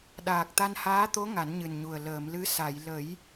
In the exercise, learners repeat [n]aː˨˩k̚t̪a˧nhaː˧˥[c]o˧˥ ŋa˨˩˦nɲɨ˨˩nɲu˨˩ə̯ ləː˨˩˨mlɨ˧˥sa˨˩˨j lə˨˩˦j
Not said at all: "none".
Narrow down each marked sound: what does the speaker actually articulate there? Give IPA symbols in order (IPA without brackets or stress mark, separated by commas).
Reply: ɗ, t̪